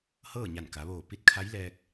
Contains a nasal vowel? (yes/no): no